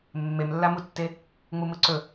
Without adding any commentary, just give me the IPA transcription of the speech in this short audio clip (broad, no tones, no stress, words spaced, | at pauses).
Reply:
mːemlːamutːe | ŋ͡mumɯǀɵ